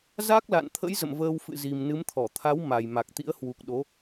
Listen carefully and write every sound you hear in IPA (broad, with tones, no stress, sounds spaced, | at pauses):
z a˦˥ k̚ l a̰˧˨ n t̪ʰ ə̰˧˥ j z ə̰˧˨ m v əː˧ w f ɨ̰˧˨ z i˨˩ m n ɨ˨˦ m t̪ʰ ɔ˧˩ t̪ʰ a˨˦ w m a˨˩ j m a˨˩ k̚ t̪ ḭ˧˥ ə̯ h w u˨˩ k̚ ɗ o˨˦